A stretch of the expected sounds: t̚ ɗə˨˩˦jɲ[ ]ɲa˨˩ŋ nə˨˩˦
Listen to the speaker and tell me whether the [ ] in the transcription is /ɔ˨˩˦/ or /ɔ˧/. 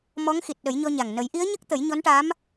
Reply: ɔ˧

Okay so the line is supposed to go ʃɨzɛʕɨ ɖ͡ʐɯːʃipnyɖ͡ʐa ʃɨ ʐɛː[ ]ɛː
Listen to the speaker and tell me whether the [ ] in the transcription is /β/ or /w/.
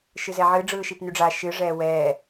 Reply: w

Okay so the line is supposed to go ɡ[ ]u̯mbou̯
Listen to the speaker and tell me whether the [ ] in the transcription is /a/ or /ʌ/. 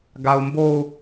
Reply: a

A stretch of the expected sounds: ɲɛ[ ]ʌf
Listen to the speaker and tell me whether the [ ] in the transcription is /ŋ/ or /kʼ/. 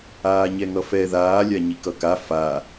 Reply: ŋ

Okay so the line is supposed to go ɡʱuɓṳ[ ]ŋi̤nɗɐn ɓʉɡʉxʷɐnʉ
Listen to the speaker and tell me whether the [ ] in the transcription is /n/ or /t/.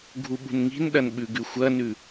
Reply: n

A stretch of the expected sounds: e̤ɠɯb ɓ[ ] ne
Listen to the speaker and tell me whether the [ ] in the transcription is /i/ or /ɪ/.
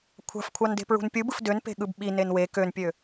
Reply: i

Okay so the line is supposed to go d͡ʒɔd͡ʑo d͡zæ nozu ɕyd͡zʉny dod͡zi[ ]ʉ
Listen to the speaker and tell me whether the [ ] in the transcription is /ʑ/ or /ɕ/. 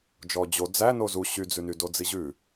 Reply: ʑ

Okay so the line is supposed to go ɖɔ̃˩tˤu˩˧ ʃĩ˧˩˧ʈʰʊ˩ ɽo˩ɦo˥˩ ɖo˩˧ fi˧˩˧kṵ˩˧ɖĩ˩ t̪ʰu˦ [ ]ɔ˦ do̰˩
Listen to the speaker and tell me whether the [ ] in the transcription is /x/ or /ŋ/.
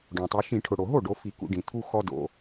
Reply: x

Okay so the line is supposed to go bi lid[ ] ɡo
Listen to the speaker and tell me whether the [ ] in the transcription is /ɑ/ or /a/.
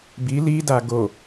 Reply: a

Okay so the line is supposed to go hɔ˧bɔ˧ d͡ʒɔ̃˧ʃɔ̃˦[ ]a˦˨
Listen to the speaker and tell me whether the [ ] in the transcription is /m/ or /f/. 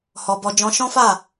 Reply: f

